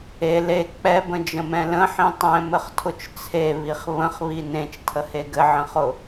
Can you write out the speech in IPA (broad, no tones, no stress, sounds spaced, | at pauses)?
e l e k͡p ɛ b ə̃ d͡ʒ ə̃ m ɛ̃ l ə̃ ħ ĩ tˤ ɛ̃ m ɘ χ tʰ ʊ t͡ʃ t͡sʰ e β i χ β ə̃ χ β i n ẽ t͡ʃ tʰ ə h e ɡ ɘ ʕ ə̃ χ ʊ